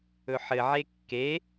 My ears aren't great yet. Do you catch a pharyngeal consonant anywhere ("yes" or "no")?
yes